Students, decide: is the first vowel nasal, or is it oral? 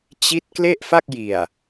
oral